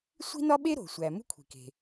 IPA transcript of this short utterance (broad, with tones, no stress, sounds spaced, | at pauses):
sʷ i̤˥ n ɒ˥ ɓ e˥ ɾ o̤˩ sʷ æ˩ m ṳ˥ kʷʰ i̤˩ k e̤˩